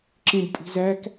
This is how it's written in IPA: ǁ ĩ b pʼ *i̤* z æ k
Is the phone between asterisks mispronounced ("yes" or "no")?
no